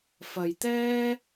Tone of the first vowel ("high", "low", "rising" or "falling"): low